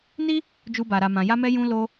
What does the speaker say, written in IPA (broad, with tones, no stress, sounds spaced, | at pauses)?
n i˦ | d͡ʒ u˦ b a˧ ɾ a˧ m ã˧ j a˦ m ɛ˦ j ũ˦ l o˧